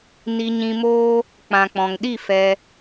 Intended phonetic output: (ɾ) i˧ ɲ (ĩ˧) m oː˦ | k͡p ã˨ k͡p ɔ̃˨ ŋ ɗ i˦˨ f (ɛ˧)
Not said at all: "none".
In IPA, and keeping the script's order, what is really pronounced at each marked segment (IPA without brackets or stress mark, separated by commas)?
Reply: n, ĩ˧, ɛ˧